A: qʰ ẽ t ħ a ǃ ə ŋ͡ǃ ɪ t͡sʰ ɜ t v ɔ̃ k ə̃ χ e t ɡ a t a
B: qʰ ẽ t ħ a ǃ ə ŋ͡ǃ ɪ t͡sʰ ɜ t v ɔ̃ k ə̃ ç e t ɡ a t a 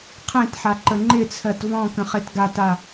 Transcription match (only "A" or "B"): A